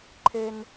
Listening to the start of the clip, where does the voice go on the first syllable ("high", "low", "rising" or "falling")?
high